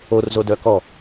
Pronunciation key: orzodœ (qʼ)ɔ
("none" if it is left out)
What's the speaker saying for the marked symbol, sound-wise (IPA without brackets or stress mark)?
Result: k